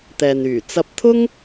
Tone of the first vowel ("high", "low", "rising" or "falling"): low